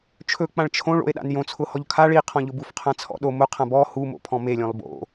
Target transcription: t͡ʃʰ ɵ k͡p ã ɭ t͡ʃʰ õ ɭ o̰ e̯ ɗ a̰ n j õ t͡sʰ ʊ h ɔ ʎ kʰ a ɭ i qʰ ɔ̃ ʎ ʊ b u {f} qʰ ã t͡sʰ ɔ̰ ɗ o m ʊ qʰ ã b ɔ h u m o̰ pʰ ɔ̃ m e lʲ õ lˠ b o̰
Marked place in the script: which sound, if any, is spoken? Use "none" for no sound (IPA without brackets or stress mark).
f